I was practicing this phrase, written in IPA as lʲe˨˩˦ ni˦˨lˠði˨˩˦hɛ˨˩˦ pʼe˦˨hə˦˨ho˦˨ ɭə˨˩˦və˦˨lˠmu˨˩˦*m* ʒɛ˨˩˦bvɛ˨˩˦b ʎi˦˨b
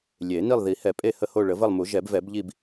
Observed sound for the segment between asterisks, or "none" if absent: none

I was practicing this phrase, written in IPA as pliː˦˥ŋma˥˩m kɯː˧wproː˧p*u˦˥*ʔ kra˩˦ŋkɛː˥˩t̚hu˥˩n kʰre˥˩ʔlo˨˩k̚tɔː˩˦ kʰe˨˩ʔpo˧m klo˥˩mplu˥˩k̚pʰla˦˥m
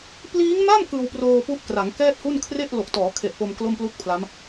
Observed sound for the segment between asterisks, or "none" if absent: u˦˥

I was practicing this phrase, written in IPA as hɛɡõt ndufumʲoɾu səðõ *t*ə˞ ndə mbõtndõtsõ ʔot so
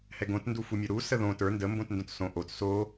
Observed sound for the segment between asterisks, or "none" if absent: t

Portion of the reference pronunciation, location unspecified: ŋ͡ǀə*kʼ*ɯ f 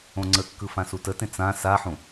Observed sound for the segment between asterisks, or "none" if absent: kː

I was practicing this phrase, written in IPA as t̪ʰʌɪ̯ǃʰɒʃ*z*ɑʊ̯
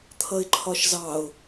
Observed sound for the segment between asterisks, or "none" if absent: z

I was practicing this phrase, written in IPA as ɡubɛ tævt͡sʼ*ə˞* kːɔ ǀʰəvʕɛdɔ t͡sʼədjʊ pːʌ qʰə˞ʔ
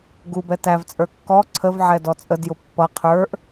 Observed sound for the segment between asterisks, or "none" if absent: ə˞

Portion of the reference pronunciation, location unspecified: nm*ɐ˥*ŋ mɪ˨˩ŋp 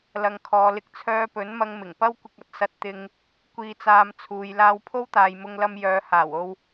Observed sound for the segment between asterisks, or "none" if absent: ɐ˧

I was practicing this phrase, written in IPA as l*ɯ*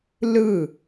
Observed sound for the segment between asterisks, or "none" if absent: ɯ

